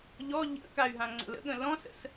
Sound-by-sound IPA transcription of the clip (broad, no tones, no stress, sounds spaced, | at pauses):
ʎ ɔ ʎ ə̰ k a y̯ ɦ ã ŋ͡ǀ ə̰ l ə̰ ɠ ə̃ l ɔ̃ s ə̰ s